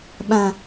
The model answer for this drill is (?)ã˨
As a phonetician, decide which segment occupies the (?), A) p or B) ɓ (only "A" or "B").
B